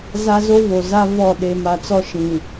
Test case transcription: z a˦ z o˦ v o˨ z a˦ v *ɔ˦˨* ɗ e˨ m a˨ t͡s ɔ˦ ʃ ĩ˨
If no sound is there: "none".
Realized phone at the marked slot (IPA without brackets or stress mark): ɔ˦˨